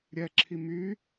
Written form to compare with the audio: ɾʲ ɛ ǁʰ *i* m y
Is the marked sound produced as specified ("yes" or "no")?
yes